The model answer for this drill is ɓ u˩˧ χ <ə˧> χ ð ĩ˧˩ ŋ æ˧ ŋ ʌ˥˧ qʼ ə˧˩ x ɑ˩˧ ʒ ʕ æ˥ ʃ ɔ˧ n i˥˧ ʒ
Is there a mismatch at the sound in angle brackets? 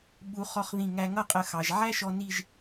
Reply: yes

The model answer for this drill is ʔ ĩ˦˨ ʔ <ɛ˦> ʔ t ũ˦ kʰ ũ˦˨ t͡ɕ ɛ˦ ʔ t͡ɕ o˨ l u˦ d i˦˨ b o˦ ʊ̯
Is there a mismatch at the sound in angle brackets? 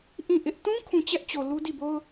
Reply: yes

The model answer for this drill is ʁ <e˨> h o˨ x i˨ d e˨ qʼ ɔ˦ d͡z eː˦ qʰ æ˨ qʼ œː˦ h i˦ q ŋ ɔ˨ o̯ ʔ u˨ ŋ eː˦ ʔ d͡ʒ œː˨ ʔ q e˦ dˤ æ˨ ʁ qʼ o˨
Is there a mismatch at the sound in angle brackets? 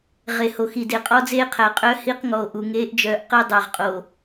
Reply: no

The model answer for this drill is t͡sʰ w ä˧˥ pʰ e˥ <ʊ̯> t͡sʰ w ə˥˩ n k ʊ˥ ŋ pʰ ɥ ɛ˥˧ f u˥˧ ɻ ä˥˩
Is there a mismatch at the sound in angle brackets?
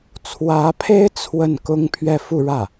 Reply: yes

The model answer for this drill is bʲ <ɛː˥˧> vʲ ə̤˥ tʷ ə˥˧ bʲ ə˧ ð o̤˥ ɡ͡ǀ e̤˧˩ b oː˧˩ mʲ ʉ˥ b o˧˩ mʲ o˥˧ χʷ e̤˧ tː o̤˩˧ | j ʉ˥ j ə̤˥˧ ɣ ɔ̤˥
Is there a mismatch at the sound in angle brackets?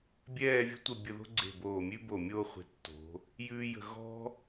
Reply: no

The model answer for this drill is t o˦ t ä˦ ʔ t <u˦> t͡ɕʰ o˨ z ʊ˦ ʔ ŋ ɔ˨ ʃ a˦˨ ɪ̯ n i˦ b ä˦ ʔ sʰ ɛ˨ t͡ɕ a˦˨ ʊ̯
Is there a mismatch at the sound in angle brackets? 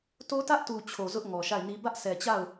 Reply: yes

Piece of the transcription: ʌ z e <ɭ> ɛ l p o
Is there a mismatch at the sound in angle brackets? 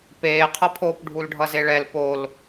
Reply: no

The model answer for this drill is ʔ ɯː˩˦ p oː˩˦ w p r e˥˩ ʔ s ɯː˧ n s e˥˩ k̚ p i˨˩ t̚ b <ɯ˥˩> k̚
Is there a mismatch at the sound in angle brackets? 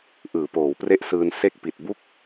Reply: yes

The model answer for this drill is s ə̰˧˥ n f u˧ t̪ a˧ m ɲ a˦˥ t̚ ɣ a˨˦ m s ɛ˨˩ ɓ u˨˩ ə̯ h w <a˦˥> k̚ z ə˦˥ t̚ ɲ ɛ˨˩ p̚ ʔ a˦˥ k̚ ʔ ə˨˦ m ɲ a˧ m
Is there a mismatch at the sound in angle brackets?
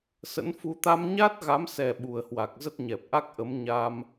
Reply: yes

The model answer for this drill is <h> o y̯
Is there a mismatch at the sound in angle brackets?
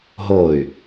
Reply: yes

